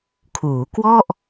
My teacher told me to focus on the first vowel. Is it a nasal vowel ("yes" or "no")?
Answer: no